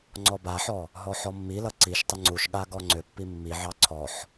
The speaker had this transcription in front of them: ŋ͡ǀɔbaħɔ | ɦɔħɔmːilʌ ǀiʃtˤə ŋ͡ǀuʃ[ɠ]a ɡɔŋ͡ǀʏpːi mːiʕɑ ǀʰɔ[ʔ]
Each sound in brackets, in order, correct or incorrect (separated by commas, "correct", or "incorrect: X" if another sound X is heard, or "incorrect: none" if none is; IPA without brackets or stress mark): correct, incorrect: ħ